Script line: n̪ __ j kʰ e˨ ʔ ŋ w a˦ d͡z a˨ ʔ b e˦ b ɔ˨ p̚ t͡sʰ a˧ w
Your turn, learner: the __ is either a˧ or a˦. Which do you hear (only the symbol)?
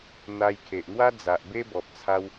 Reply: a˧